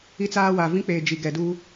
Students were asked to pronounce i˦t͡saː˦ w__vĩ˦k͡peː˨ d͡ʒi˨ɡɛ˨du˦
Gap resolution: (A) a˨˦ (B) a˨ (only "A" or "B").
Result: B